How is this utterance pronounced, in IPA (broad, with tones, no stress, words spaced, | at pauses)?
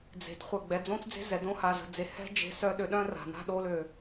d͡ze̤˨dχʷə˦˨ ɡ͡bɛ˨d͡zõ˦t͡sd͡ze̤˦ zɛ˨ dõ˦ha˨zə̤˨ d͡ze˨ hɛ̤˦ d͡ʒe̤˦sœ˦ ɗø˨ɗœ̃˦ ra̤˨ na̤˦ɗo˨˦lø˨